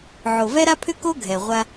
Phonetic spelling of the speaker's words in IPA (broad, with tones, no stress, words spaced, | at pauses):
ʕo˨vɛ˦ɾa˦pʰʏ˦ ko˦ ɡʱɛ˨ʁʷa˦